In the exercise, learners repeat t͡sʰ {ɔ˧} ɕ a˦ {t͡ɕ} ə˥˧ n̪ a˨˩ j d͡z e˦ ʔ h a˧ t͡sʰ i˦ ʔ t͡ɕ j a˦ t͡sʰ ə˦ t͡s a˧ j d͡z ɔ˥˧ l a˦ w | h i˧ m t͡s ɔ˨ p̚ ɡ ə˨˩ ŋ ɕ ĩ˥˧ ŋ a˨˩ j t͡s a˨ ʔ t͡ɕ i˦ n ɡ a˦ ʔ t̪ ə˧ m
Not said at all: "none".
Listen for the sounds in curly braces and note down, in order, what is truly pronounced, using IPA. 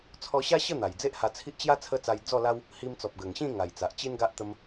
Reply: ɔ˧, ɕ

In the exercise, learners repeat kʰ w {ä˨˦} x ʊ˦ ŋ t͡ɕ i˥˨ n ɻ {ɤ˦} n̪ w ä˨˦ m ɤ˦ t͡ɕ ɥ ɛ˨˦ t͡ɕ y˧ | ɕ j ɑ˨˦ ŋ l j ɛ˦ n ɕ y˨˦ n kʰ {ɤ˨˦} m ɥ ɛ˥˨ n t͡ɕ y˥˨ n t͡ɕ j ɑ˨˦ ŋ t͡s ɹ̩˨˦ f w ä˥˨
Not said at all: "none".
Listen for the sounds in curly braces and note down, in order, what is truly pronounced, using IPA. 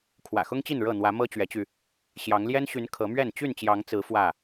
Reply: ä̰˨˩, ɤ˥˨, ɤ˨˦

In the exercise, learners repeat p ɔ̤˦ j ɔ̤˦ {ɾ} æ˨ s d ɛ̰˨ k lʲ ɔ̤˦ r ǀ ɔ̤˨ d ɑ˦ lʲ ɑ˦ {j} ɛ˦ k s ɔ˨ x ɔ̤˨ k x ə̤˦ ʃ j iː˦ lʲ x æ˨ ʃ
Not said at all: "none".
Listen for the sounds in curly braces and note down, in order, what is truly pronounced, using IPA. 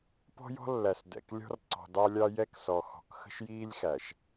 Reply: lː, j

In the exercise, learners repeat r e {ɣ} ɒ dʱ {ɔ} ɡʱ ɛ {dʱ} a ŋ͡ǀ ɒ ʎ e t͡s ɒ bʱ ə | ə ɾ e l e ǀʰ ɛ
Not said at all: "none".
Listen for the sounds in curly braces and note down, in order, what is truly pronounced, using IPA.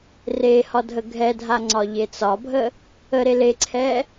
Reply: h, ə, dʱ

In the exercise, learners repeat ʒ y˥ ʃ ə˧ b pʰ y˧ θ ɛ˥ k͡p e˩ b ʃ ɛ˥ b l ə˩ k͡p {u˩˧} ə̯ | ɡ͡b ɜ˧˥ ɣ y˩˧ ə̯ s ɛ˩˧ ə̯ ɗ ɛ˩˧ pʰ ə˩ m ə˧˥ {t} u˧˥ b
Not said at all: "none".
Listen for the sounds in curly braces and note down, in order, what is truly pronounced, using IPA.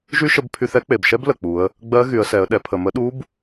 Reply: u˩˧, ɗ

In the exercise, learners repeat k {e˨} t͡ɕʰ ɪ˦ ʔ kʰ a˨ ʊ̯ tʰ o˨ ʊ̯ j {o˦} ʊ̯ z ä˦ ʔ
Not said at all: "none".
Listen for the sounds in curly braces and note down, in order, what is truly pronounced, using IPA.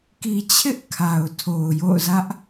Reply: i˨, o̰˦˨

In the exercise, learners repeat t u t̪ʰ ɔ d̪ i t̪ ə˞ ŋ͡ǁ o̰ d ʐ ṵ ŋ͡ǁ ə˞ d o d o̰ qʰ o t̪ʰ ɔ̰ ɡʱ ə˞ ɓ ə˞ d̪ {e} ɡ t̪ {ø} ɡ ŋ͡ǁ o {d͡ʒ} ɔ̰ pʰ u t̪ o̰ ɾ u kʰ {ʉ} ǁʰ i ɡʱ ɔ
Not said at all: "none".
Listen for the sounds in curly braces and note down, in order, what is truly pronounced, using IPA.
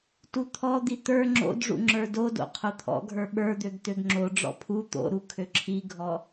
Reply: ø, ø, ɖ͡ʐ, ø

